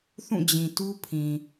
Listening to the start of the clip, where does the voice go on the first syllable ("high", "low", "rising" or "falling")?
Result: falling